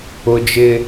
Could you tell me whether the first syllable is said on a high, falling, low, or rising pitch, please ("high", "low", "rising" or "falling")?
high